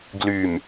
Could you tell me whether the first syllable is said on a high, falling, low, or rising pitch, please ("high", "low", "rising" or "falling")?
low